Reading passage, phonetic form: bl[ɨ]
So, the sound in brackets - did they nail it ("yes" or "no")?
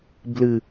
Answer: yes